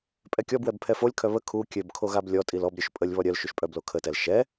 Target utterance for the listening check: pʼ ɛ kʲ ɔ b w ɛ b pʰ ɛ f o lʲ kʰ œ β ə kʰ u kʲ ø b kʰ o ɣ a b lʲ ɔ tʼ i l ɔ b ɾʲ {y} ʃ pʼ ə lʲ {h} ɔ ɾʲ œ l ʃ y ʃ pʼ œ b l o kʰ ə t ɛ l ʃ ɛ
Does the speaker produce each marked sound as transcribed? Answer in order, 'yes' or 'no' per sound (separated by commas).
no, no